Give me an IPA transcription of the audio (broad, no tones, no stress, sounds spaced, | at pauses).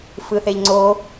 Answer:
f ɯ θ e ʎ ŋ͡ǀ o